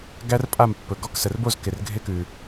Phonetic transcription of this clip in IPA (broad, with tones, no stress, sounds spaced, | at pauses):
ɡ æ˦˥ r pʼ a˥˩ m pː ɵ˩ ɡ ɔ˧˥˧ k s ə˩ r b o˥˩ z k ɪ˩ r ɡʱ ɪ˧˥˧ k ʉ˩